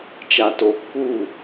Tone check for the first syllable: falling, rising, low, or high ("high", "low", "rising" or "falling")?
low